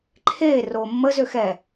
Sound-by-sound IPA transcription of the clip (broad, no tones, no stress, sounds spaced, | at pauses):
ǃʰ eː r oː mː ə z ø x ɛ